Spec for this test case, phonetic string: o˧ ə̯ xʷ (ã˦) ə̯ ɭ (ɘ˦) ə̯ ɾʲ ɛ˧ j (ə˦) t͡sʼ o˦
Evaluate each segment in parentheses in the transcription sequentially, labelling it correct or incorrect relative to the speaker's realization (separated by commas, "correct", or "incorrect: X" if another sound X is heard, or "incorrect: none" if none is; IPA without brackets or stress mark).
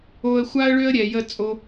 incorrect: a˦, incorrect: ø˦, correct